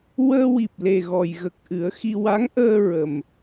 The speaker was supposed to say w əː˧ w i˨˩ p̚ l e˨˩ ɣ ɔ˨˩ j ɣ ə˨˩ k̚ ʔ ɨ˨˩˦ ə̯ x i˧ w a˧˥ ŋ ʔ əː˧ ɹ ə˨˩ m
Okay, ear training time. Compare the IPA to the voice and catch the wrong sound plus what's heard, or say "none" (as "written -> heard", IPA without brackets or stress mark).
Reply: none